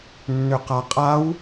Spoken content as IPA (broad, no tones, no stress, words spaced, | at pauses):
nːʏqaqʼaw